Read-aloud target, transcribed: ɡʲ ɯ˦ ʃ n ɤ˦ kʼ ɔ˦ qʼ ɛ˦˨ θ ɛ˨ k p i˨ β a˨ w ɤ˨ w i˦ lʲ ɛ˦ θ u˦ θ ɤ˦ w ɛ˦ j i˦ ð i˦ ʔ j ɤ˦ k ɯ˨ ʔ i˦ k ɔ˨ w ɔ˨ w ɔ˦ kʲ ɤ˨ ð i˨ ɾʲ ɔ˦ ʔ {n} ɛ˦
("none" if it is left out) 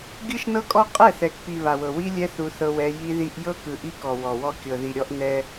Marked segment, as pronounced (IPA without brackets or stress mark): n